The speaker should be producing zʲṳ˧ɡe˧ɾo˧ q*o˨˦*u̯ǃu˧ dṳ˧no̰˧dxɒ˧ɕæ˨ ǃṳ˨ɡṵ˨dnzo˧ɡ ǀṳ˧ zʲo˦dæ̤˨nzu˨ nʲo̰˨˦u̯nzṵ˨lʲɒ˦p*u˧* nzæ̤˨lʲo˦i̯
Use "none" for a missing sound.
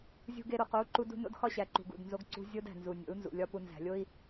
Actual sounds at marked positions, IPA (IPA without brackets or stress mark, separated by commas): o˨˦, u˧